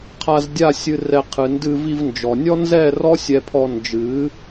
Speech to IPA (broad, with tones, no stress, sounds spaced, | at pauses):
qʰ a˧ z dʲ a˦˨ sʲ ɨ˧ r ɛ˧ qʰ ɨ˨ n d ɨ˧ v i˧ v n d͡ʒ ɔ˨ nʲ ɔ˦ n z ɛ˦˨ r ɔ˦ sʲ ɛ˧ pʰ ɔ˧ n d͡ʒ ɨ˨˦